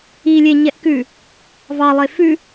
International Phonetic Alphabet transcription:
i lʲ e ɲ ɛ ʔ k ʉ | v ɑ lˠ e f ʉ

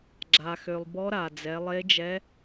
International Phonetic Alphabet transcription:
ɡ͡ǁ a˩ x ø˩ lˠ b ɔ˧˥ ɾ a˩ d͡z ɛ˩˧ lˠ e˧˥ d͡ʒ ɛ˧˥

